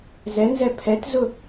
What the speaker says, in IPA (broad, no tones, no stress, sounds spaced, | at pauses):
z ɛ n z ɛ pʰ ɛ t z ʊ